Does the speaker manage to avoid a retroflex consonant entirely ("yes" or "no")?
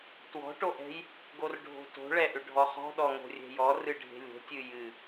no